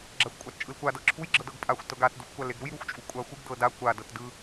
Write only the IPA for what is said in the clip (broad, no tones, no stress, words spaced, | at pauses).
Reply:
ɡ͡ǁaxʷkʷʼatt͡ʃʼɯlkʷa dɤǁʰuj ɡ͡ǁɤdɤɡpʼaxʷ tɤɡat duxʷkʷaleɡɾuj ɾuxʷt͡ʃʼukʷʼaxʷɯɡ dɤda kʷa dɤtdɯ